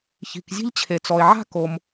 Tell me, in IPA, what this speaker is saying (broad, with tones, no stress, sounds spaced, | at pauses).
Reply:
ç i̤˩ k zʲ e̤˥ ʎ t͡ɕʰ e˩ t͡s ɔ˩ e̯ ʕ a̤˥ k o˩ m